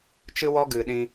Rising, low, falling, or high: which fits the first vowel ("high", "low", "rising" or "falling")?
high